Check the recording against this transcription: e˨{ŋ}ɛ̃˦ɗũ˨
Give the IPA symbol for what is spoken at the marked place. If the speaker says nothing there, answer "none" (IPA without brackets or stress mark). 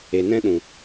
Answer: n